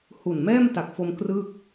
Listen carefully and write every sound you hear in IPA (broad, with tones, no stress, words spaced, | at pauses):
hu˨˩nmɛː˥˩mta˨˩k̚fo˧m krɯː˥˩k̚